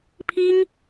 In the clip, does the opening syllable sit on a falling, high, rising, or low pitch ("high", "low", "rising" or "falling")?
high